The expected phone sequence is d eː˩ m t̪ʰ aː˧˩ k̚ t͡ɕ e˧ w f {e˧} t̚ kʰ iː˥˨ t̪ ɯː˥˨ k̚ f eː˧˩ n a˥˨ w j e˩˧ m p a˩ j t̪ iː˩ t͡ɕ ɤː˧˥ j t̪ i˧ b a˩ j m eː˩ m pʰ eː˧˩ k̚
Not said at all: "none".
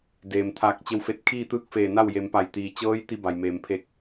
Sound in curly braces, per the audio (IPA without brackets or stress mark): e˧